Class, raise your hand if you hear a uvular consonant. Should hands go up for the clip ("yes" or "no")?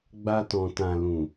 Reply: no